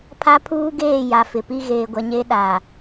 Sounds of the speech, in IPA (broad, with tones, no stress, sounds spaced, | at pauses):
pʰ a˦ pʰ uː˦ ɡ eː˦˨ j a˨ f ɪ˨ p i˦ ɣ eː˨ ɡʷ ɛ˨ ɲ e˦ ɗ a˨